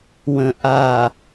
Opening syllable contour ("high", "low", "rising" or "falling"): low